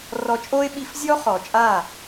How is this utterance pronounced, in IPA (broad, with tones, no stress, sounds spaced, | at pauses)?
r ɔ˧ t͡ʃʼ oː˦ ɪ̯ ɓ i˧ f zʲ ɔ˦ χ ɔ˨ t͡ʃʼ a˦˨